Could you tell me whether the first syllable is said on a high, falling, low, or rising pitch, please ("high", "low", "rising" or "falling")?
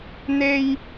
high